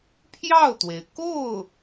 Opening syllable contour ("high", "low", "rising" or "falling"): falling